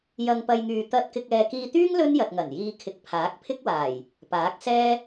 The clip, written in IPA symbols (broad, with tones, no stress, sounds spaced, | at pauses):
j ɐ˧ ŋ p ɐ˧ j ŋ yː˨ t̪ ɐ˧ t̚ k ɪ˧ k̚ ɛː˨ k iː˧ t̪ yː˥ ŋ l ɵ˥ n j ɐ˨ t̚ ŋ ɐ˨˩ n j iː˧ kʰ ɪ˨ k̚ pʰ aː˨˥ k̚ pʰ ɪ˥ k̚ w aː˨˩ j | p aː˨˥ k̚ s ɛː˥